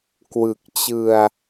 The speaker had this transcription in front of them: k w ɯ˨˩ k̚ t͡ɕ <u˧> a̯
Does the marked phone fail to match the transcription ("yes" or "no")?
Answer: yes